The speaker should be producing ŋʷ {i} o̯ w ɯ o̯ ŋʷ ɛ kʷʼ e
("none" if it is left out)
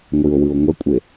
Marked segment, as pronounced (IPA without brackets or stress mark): i